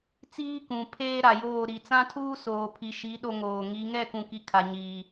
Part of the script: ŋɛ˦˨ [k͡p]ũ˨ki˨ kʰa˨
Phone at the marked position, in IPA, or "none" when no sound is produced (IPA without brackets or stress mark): k